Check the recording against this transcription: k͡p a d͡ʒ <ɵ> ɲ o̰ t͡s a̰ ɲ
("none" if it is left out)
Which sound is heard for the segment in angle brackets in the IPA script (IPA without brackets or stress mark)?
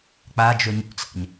ɵ